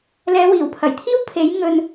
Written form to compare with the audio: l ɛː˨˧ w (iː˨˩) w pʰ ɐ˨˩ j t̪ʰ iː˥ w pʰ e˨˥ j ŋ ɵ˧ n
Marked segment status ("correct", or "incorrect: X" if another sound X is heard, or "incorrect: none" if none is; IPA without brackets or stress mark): correct